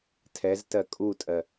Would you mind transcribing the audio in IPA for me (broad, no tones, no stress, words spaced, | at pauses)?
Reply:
tʰɛztɜ kʼutʼɜ